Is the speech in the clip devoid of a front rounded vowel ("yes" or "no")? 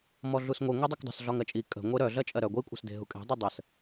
no